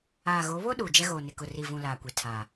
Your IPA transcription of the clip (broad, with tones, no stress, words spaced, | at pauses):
aː˨ɣo˨˦βo˦ ɗuː˨d͡ʒɛ˦ɣoː˨ nɪ˨kʊ˨ ri˨vũ˨ laː˨kʷe˨ tʰa˨